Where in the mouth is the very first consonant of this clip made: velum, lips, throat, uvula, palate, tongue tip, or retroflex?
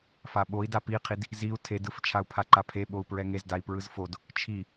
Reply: lips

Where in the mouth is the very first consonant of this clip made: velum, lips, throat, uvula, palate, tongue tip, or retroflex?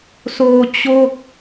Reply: tongue tip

